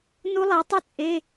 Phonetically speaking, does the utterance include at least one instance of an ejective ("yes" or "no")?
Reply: yes